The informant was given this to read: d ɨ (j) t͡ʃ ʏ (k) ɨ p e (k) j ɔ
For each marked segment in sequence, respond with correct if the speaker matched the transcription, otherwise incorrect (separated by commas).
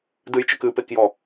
correct, correct, correct